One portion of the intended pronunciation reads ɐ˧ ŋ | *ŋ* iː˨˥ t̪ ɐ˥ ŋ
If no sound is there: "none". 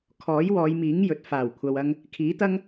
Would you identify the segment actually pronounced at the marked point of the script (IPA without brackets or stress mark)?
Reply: kʰ